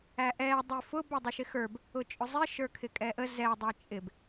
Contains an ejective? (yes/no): yes